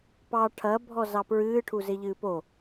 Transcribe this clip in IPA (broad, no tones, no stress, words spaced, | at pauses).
pɑ ʈʰɐbʱɔzɑ pɹɨːʈʰuzeʎɨː po